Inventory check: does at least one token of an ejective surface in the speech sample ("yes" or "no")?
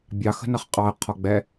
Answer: yes